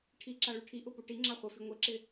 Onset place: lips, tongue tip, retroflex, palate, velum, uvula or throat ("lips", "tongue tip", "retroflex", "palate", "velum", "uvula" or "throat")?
retroflex